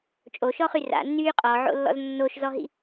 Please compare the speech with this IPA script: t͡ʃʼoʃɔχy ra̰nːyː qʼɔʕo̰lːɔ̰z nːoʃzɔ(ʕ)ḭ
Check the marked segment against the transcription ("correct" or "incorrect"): incorrect